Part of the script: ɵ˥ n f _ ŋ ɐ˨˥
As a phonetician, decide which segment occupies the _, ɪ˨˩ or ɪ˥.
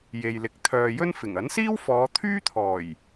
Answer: ɪ˨˩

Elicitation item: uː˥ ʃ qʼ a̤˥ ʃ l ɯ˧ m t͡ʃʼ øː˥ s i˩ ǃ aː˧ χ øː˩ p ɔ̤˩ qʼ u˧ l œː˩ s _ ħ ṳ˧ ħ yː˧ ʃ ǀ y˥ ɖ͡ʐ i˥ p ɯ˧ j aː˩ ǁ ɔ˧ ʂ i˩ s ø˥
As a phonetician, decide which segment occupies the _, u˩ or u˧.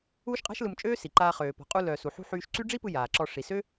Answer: u˩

